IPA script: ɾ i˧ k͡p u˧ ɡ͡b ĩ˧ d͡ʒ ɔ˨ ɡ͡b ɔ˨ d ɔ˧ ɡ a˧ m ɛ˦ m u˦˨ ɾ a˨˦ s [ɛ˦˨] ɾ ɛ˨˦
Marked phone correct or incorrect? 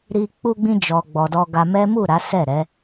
correct